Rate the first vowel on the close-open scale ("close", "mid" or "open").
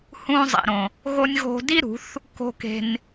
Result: close